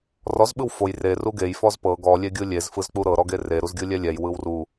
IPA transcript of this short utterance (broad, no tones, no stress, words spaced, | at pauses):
rɔz ɓɯwfoj re ruɡej fɔzpɤ ɡɔ lʲeɡʲɯlʲez fɯzk͡puɾɤ ɾɔɡere ɾuzɡʲɯlʲɛlʲɛj wɯwru